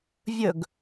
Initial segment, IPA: vʲ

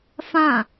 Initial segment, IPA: f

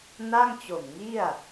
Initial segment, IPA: n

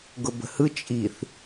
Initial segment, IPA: ɡ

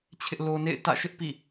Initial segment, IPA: t͡ɕʰ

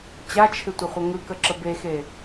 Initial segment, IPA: t͡ɕ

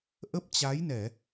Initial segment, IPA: ʔ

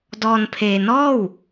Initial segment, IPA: d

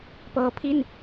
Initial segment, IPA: p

